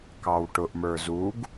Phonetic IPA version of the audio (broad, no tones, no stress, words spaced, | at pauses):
kɑwʈʊʔmə˞ zuɡ